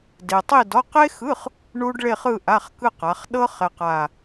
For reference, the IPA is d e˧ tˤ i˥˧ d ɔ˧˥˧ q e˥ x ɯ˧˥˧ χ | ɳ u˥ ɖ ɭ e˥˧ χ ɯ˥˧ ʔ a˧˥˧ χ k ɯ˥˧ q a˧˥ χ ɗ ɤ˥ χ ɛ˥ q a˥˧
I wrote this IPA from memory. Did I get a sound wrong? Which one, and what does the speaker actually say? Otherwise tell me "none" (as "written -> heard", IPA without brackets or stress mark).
none